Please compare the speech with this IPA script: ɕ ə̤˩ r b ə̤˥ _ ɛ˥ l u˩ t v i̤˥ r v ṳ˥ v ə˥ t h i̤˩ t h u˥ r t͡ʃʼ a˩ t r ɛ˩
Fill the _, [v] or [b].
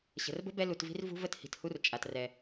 b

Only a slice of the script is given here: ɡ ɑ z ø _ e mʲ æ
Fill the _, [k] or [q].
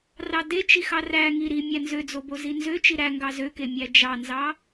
k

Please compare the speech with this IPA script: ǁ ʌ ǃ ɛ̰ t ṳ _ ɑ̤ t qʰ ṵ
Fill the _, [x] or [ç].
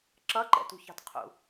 ç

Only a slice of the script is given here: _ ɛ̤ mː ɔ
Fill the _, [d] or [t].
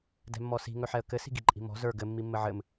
d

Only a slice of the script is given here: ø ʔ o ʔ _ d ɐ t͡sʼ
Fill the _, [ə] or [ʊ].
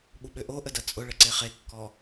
ə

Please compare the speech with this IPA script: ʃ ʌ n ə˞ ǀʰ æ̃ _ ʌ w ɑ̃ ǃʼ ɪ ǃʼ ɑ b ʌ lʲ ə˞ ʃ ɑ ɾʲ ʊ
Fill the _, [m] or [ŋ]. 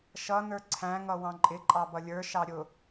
ŋ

